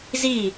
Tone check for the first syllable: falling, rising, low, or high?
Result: falling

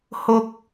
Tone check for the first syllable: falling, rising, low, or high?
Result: high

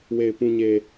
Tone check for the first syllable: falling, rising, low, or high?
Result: low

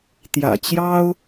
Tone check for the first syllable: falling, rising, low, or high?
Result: low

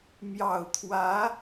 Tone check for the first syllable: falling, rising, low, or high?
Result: low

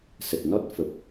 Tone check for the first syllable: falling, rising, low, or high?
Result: low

